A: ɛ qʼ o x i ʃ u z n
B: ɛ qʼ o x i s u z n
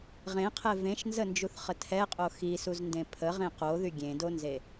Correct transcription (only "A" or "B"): B